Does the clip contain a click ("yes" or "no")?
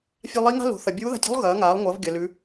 no